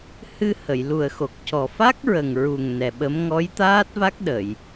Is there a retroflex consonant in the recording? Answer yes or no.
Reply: no